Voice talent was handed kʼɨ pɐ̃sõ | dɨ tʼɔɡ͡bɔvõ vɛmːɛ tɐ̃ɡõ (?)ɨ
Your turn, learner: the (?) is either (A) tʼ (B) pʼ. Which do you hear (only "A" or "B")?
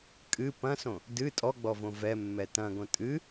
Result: A